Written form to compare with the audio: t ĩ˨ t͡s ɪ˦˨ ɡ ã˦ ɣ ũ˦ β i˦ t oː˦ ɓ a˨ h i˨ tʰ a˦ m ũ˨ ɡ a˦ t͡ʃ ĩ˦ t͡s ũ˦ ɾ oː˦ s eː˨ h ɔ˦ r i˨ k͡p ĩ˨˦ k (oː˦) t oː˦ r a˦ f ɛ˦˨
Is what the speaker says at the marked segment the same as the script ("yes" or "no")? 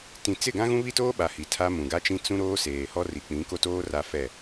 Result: no